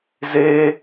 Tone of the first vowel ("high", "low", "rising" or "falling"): high